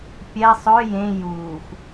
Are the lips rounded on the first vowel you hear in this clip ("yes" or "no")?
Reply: no